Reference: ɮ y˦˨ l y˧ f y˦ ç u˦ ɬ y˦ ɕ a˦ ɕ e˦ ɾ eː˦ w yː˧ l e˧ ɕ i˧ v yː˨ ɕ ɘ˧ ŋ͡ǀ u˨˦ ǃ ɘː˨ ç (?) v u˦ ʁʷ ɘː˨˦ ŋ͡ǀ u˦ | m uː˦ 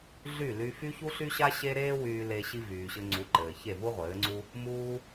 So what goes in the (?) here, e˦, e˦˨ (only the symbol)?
e˦˨